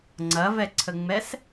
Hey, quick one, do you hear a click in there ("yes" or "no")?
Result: yes